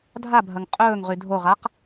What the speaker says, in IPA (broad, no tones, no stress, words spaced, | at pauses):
dʱabʱɐŋ qʼɵːŋʁy dʱoʁaq